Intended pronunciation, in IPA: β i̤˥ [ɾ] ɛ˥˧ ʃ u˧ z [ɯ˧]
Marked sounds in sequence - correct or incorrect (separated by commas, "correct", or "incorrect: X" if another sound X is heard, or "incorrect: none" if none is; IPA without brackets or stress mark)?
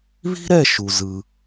correct, correct